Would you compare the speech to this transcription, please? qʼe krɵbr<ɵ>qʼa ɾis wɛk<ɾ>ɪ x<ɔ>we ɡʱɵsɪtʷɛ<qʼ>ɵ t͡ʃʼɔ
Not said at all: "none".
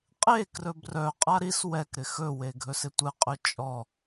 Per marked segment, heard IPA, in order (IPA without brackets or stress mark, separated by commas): œ, ɾ, ɵ, qʼ